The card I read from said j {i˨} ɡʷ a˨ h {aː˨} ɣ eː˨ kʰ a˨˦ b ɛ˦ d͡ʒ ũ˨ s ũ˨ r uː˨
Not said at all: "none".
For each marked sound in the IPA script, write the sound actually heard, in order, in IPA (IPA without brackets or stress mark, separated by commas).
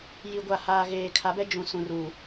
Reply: i˨, aː˨